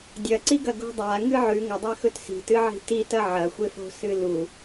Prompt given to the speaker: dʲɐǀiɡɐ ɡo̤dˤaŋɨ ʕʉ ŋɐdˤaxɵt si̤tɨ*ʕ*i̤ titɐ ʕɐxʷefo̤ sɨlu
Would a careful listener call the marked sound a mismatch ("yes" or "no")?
no